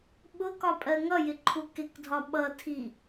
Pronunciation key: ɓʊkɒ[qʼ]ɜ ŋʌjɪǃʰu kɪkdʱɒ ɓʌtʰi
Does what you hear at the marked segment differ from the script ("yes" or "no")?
yes